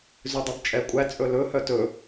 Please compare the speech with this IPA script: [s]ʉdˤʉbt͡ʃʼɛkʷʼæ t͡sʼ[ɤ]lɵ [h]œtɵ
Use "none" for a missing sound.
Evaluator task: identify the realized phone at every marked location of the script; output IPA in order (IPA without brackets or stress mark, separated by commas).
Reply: z, ɵ, h